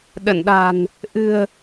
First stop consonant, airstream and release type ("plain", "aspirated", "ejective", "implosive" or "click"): implosive